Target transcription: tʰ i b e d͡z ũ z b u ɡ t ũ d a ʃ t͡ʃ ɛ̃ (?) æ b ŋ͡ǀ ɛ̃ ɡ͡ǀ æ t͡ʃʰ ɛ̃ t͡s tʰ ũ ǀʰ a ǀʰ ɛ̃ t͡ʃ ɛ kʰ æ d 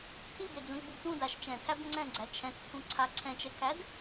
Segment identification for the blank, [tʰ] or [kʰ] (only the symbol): tʰ